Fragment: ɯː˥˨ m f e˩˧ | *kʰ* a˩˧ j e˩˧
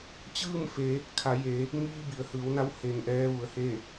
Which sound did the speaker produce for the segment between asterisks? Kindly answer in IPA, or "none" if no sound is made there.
kʰ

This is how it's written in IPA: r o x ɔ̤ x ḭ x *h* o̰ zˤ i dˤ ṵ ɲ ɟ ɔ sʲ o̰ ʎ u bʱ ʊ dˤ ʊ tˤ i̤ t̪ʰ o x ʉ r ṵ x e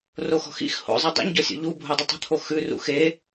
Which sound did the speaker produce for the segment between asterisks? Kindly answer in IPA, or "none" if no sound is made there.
h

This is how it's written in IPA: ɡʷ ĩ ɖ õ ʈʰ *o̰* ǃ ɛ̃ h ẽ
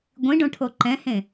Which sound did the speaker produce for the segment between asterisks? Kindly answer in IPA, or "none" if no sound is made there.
o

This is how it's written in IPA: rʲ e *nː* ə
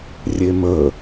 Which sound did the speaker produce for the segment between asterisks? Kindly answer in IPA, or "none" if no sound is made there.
m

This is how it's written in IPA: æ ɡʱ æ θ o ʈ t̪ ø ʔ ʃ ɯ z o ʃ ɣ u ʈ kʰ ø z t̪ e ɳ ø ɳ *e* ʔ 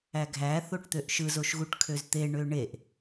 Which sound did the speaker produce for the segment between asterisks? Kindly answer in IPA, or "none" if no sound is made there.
e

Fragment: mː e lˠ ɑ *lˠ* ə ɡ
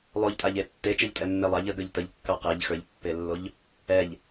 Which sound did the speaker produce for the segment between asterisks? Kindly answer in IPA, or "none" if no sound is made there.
ʎ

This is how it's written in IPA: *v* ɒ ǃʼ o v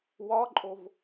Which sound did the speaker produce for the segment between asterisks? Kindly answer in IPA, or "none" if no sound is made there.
w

